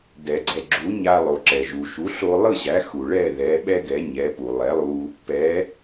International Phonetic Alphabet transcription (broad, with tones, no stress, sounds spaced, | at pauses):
d ɛ˩ ɡ͡ǀ ɛ˩ ɡ͡ǁ u˩˥ ɲ a˧ lˠ o˩ ǁ ɛ˩ ʒ u˩ ʃ u˩˥ ɬ o˧ lˠ ɯ˥˩ ɕ æ˩˥ x u˩ ɭ ɛ˥˩ ð ɛ˩˥ ɓ ɛ˥ ɡ ɛ˩˥ ɲ ɛ˩˥ p u˩ lˠ ɛ˩˥ lˠ u˧ | p ɛ˩˥